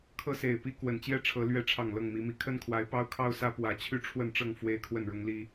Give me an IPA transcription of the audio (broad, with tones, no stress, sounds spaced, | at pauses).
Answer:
kʰ ɤ˦ s e˨˩ ɪ̯ p i˦ k w ə˨˩ n t͡ɕ j ɛ˥˨ ʈ͡ʂʰ ɤ˨˦ l ɥ ɛ˨˦ ʈ͡ʂʰ ɑ˨˩ ŋ l ɤ˥˨ ŋ m i˨˦ m i˨˦ kʰ ə˦ n kʰ w a˨˦ ɪ̯ p ɑ˦ ʊ̯ kʰ ɑ˦ ʊ̯ s ä˦ p w ä˨˦ t͡ɕʰ y˥˨ ʈ͡ʂʰ w ə˥˨ n ʈ͡ʂ ɤ˥˨ ŋ f w e˦ ɪ̯ kʰ w ə˥˨ n ɻ ʊ˦ ŋ l i˦